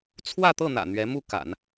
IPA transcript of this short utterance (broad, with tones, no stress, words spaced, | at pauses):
t͡sʰwä˥˧t̪ɤ˥˩n̪ä̰˨˩ n̪ɥɛ˧˥mu˥˩ ka̰˨˩˦n